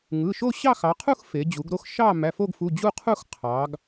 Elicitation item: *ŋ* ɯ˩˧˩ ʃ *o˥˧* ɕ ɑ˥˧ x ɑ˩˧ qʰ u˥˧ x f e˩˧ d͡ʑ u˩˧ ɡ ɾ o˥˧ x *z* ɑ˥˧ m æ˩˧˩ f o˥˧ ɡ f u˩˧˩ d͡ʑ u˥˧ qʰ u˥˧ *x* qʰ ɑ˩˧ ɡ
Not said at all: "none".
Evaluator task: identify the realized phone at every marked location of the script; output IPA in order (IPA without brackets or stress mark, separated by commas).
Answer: ŋ, o˥˧, ʃ, x